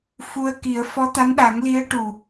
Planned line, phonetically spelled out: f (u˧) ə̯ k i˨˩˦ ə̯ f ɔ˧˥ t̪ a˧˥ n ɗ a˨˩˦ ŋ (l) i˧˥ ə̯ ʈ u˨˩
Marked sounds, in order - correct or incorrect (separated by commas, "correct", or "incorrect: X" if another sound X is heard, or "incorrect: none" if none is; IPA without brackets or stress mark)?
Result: correct, correct